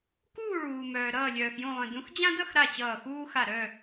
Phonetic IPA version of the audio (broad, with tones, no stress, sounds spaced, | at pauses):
k uː˥˨ ɭ uː˩ m œː˩ ɾ ʌː˧˩ lʲ œː˩ x j ũ˧˩ lˠ œ̃˩ d ũ˨˦ x d͡ʑ ã˦ d ʌ˥˨ x ɾ a˧˩ t͡ɕ ʌː˧˩ x uː˦ x a˧˩ ɾ œ˥˨